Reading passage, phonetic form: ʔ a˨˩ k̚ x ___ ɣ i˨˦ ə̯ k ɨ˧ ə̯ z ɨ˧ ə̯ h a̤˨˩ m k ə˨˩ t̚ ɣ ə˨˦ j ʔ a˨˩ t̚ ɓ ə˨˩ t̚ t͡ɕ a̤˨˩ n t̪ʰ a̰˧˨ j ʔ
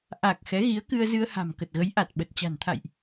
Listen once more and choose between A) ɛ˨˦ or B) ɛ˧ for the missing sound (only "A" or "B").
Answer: A